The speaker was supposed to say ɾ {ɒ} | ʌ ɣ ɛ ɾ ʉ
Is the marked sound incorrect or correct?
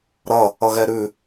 incorrect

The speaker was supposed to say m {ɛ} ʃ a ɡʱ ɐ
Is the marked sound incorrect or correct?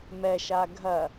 correct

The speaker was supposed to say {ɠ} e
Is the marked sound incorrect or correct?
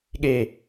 correct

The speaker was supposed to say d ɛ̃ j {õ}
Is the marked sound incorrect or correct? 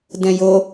incorrect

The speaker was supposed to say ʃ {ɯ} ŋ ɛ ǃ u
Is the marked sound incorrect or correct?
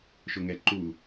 incorrect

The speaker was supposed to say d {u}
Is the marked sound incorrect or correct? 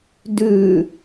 incorrect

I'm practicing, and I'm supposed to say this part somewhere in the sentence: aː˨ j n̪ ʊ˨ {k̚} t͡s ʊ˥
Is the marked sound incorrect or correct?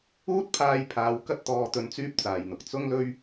correct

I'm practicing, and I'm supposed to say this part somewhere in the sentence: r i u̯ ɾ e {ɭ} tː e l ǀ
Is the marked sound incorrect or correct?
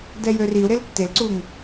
incorrect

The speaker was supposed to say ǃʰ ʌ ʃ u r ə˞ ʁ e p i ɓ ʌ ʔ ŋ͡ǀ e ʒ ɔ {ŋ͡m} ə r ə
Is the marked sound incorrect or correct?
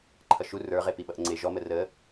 incorrect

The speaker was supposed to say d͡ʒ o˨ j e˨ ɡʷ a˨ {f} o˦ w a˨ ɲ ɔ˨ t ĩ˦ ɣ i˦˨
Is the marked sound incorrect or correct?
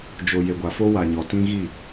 correct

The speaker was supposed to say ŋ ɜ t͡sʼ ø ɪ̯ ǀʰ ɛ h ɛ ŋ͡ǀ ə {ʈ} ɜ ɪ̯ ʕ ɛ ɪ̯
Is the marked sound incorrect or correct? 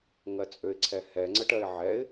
correct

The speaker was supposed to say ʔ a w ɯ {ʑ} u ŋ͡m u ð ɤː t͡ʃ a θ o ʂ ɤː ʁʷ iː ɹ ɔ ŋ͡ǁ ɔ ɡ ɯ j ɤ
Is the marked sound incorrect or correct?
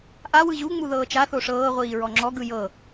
correct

